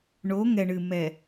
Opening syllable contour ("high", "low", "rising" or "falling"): rising